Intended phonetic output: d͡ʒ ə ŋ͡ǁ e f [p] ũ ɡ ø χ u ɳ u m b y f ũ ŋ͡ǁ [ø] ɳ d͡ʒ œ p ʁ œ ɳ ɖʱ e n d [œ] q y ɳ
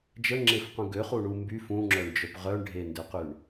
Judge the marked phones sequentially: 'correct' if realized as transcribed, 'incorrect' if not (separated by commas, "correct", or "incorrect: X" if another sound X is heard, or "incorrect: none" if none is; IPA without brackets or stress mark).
incorrect: q, incorrect: œ, incorrect: ø